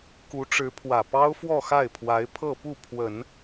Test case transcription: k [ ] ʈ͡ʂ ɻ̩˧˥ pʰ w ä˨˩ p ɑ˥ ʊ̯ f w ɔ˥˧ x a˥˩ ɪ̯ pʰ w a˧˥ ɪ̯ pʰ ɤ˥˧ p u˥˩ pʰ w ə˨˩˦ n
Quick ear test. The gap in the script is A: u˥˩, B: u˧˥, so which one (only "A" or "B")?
B